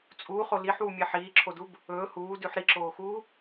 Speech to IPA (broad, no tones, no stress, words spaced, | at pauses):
t͡sʼuːχo liħwumʲe ħiːǁʰodub | ɵː huːdʉħ ɾiǁoːxuː